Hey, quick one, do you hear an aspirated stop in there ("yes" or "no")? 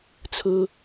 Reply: yes